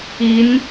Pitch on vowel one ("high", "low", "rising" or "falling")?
rising